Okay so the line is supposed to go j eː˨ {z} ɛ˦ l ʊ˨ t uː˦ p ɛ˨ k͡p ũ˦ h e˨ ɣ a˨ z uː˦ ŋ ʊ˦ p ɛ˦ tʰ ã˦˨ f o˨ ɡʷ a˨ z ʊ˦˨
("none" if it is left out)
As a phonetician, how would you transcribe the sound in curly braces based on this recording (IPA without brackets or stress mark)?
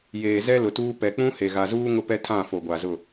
z